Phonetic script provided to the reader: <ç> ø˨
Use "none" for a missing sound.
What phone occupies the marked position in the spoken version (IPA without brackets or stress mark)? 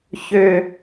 ç